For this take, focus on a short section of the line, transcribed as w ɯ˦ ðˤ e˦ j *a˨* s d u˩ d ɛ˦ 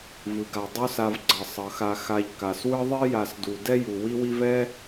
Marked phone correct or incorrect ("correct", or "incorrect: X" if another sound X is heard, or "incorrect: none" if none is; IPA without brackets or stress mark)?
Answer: correct